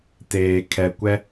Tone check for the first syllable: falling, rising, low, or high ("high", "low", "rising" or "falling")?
low